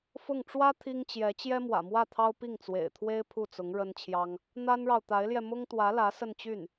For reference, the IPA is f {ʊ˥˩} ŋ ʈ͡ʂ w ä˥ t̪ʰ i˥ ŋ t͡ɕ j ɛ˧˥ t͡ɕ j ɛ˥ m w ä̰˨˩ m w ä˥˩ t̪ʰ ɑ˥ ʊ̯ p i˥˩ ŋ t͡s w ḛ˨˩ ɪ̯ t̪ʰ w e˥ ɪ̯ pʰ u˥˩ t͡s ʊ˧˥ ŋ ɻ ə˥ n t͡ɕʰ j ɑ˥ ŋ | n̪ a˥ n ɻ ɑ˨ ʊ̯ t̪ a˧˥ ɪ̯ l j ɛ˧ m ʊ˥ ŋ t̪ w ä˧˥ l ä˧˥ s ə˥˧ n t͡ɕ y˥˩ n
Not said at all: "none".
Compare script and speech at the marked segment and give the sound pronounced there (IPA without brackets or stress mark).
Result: ʊ˥˩